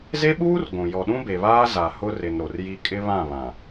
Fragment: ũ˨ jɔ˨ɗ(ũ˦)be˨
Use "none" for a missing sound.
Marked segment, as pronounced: ũ˦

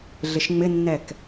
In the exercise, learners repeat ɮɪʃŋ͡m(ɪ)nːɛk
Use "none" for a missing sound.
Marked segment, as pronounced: ɪ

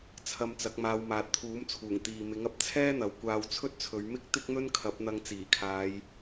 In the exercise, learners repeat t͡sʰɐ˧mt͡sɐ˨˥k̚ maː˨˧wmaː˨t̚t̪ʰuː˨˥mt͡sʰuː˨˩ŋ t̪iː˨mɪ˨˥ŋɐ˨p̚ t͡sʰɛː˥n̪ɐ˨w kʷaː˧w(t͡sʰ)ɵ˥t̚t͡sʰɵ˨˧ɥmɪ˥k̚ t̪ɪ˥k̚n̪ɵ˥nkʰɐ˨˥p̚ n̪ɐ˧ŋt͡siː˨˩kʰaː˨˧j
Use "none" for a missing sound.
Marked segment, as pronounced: t͡sʰ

